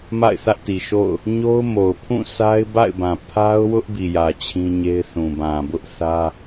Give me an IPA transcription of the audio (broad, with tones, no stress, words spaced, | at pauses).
ma̰˦˨ɪ̯θä˦ʔti˨ʃo̰˦˨ʊ̯ | ɲo˦ʊ̯mo˨ʊ̯pʰũ˦˨ sʰa˦ɪ̯ba̰˦˨ɪ̯bã˨ pʰa˦ʊ̯wʊ˦ʔ bi˨jä˨ t͡ɕʰĩ˦ɲe˦ɪ̯θũ˨ bã˨bʊ˦ʔθä˦